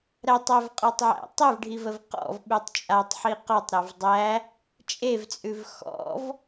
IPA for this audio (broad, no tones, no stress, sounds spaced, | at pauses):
ɾ æ tˤ æ v qʼ ɔ tˤ ʕ æ̰ tˤ e v ɖʱ i v ə v q ɔ̰ v ɓ ʉ tˤ t͡ʃʼ a tˤ ħ i q ɔ tˤ ɾ a v dˤ æ | t͡ʃʼ e v t͡sʼ ʉ v x ɔ̰ v